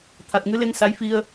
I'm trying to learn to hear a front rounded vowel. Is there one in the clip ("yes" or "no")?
no